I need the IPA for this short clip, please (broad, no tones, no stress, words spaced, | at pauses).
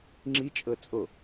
ŋ͡ǁit͡ʃʼɤ t͡sʼo